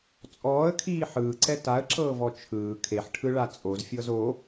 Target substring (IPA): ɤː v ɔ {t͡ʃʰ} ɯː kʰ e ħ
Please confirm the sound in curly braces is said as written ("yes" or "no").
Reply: yes